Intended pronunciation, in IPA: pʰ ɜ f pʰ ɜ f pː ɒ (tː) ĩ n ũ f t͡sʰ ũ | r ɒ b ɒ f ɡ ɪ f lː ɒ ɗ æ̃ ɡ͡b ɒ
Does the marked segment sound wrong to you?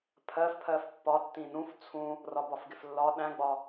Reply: no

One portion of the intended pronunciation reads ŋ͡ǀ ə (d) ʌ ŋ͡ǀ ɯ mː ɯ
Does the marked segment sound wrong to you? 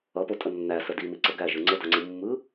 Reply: no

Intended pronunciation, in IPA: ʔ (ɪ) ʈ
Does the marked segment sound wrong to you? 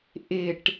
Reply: no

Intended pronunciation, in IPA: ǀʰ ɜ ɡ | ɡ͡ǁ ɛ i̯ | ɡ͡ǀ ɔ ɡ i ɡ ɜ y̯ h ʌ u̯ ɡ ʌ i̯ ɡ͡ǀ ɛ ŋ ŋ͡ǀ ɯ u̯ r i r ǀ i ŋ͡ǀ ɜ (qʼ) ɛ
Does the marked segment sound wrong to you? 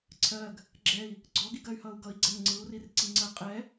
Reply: no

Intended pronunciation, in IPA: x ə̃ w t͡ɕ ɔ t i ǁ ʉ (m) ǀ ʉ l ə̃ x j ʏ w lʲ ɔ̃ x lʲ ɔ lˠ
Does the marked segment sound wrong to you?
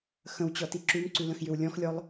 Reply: no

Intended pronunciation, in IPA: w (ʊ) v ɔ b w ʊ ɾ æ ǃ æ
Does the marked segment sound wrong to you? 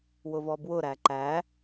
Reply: no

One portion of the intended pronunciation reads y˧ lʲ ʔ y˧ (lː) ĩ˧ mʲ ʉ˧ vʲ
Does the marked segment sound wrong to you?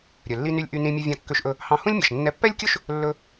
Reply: yes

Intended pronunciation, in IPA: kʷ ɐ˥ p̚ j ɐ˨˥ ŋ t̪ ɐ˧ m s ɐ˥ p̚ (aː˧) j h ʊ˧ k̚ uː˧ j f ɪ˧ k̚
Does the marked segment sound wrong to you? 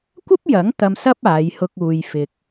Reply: yes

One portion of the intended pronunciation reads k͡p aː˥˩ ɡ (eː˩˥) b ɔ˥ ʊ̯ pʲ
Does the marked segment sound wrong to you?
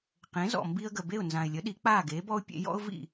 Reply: no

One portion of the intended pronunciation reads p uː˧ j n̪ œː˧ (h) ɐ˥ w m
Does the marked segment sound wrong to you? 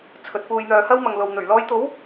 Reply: no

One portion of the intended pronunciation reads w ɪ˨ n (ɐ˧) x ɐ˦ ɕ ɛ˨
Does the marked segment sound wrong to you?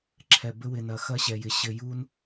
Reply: yes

